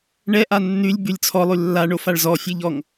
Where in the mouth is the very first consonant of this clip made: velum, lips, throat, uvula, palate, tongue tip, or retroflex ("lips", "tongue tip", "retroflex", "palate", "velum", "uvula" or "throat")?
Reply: retroflex